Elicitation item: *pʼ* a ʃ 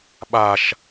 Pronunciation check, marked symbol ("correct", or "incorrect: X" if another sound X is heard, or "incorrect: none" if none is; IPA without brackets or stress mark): incorrect: ɓ